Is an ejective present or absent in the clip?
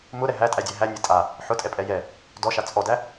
present